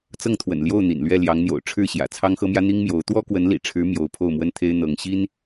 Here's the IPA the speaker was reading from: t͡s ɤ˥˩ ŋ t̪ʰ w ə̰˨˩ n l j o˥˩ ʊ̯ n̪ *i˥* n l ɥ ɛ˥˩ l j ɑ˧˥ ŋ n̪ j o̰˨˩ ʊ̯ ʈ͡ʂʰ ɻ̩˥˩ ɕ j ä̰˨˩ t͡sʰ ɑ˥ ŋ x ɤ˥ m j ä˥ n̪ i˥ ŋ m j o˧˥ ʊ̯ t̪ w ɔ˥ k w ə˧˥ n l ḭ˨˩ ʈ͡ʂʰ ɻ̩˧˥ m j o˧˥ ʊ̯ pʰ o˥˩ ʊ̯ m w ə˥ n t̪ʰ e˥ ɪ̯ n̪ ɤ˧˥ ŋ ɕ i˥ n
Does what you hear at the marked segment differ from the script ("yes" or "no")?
yes